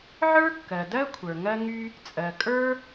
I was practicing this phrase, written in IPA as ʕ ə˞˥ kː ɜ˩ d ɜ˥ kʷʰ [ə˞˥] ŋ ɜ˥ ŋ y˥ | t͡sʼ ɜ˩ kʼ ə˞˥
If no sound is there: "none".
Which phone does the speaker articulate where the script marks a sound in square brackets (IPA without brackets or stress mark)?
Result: ə˞˩